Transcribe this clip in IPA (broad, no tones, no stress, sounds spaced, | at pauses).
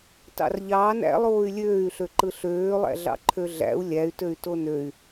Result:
t ɑ̰ r ʎ ɑː n æ̰ lˠ oː y̯ lʲ øː y̯ ɬ ø ǃ ɯ ɬ øː lˠ æ̰ ɮ ɑ̰ ǃʰ ø ɮ æ̰ u̯ lʲ æ y̯ t ø y̯ t o n ø y̯